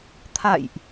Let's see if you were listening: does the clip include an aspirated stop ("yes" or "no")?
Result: yes